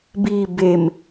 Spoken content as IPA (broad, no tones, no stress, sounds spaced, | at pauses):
b i b e m